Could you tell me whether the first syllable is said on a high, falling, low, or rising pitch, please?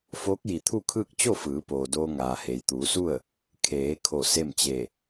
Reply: rising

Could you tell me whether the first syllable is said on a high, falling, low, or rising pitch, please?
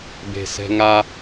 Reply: low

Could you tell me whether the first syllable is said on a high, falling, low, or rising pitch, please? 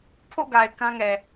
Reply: falling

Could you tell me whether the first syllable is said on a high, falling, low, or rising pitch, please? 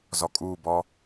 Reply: low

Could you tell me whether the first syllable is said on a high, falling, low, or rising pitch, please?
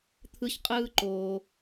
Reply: high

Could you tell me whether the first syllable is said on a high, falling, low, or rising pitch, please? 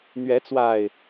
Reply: rising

